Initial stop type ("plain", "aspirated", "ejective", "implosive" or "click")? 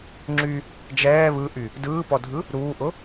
click